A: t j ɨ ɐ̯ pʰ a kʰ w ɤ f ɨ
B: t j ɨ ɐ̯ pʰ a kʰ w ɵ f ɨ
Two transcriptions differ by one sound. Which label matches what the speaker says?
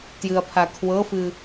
A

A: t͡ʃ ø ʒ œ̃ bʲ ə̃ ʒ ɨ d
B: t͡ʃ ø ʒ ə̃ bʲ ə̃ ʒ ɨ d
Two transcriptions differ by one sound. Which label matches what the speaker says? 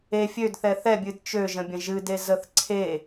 B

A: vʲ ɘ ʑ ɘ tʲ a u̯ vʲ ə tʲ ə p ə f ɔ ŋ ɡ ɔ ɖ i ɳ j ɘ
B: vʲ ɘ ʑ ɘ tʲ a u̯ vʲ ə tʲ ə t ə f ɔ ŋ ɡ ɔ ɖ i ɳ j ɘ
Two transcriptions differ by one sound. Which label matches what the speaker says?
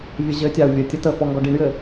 B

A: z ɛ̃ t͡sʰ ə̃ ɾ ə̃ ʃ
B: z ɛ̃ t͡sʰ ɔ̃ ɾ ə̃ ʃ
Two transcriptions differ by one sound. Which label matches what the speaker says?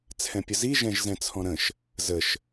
B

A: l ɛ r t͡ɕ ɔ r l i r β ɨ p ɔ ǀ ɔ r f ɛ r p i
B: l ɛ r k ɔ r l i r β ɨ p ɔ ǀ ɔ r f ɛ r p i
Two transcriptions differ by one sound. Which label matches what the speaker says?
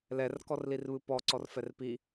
B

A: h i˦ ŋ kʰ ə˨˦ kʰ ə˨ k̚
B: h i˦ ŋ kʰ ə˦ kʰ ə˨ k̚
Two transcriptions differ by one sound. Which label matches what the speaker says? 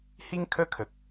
B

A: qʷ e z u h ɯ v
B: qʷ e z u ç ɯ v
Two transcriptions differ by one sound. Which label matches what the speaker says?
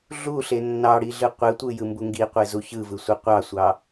B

